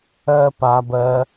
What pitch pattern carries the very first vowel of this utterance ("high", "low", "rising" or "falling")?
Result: low